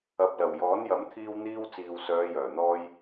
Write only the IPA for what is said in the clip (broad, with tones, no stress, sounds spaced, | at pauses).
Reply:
ɐ˨ p̚ l ɐ˨˩ w j ɔː˨˥ n j ɐ˨˥ m t̪ʰ iː˥ w n̪ iː˥ w t͡s iː˨ w s œː˨˧ j œː˨˩ n̪ ɔː˥ j